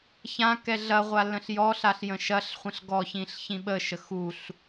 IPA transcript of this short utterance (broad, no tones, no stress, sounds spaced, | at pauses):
ç ã k ɛ ɮ ɐ ʁʷ a l ə̃ ɬ j ɔ ɬ a ɬ j ə̃ ʃ ɐ ɬ χʷ ə̃ ɬ ɡ ɔ ç ĩ ɬ ç ĩ ɓ ə ʃ ə x u ɬ